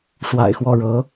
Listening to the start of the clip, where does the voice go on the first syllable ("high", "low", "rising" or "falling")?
low